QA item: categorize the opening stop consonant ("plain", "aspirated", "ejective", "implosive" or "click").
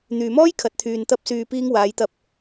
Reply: aspirated